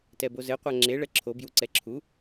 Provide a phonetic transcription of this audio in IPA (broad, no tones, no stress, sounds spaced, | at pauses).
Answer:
t ɛ b o z ɘ qʷ a ŋ͡ǁ e ɭ ɛ ǁʰ o b j u ǀ ɛ ǁʰ u